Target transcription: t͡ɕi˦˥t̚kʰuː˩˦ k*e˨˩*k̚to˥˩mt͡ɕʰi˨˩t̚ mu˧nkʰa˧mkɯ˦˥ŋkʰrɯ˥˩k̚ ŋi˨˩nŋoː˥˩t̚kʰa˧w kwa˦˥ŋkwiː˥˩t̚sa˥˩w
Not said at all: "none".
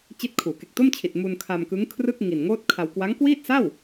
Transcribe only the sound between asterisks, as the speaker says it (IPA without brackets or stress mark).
e˨˩